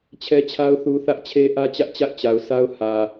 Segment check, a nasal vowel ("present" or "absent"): absent